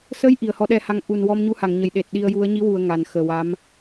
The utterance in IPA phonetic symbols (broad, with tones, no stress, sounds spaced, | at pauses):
s ə˧˥ j ʔ i˨˩ ə̯ h ɔ˧˥ ɗ ɛ˧ h a˧ ŋ ʔ u˨˩ n w ɔ˧ m ɲ u˧ h a˨˩˨ ŋ ɲ ə˨˩˨ j ɗ e˨˩ t̚ ɗ i˧ ə̯ j u˧˥ ə̯ ɲ i˧˥ w u˨˩ ə̯ ŋ a˨˩ n x əː˨˩ w a˧˥ m